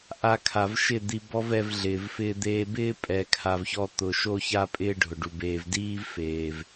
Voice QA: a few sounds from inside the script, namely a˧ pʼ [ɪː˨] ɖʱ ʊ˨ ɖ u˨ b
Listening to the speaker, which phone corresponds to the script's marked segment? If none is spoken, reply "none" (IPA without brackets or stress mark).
ɪː˧